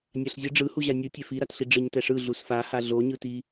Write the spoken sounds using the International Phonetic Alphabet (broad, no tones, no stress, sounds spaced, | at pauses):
nʲ a ɬ zʲ ɯ ɖ͡ʐ ɯ h u ʑ a nʲ ɯ tʲ ɛ f i ɾ a t ɬ i ɖ͡ʐ ɯ ɲ t ɛ ʂ ɯ ɮ u s f a h a ɮ o ɲ ɯ t i